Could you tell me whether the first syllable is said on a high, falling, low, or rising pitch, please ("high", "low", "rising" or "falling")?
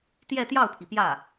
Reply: falling